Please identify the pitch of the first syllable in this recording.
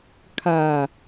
low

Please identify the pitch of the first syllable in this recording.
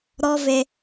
high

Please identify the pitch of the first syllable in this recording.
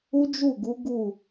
high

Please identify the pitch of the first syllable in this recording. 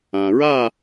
low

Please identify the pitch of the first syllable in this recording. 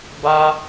high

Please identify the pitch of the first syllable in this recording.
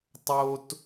high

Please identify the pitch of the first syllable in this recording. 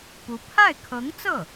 rising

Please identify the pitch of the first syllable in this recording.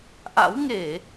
rising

